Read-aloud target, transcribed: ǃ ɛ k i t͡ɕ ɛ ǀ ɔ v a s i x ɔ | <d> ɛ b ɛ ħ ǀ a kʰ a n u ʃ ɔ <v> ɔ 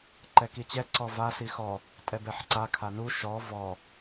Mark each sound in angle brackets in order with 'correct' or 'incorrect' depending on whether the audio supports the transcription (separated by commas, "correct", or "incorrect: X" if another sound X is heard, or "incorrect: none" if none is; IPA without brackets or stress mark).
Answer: incorrect: tʼ, correct